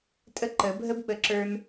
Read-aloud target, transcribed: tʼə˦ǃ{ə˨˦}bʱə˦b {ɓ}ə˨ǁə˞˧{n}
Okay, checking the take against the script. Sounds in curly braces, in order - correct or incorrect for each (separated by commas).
correct, correct, correct